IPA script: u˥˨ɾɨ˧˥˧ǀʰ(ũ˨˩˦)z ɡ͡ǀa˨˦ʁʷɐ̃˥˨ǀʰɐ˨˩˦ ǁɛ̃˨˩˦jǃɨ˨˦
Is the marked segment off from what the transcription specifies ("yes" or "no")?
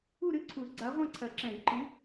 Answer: yes